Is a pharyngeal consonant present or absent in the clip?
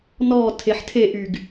present